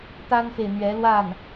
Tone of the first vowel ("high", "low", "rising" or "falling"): high